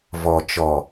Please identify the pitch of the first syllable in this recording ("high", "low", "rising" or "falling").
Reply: low